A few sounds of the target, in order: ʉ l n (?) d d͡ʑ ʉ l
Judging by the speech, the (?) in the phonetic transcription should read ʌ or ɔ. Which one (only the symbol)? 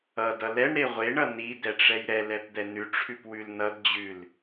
ʌ